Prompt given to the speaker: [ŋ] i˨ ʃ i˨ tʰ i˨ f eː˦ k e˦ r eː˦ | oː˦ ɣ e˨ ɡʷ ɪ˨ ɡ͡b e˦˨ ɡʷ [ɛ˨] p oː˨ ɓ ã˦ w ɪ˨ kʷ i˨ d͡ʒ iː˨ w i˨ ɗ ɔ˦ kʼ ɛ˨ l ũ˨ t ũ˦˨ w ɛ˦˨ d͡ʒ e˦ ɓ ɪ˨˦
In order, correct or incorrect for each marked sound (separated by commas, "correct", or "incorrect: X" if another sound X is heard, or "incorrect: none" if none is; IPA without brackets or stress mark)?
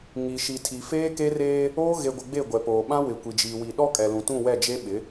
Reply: correct, correct